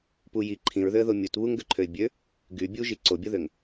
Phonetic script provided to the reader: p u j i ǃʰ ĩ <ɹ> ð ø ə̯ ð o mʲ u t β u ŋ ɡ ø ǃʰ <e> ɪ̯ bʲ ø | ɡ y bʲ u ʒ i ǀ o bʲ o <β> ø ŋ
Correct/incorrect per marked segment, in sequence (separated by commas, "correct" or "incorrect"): correct, incorrect, incorrect